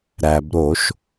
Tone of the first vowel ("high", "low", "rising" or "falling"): low